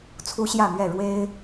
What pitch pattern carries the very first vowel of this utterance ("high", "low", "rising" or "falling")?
high